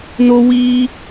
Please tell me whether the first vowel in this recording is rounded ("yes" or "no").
yes